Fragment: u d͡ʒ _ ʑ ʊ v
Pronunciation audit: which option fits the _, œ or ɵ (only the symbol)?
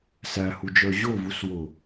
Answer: œ